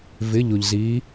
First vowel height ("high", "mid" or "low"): high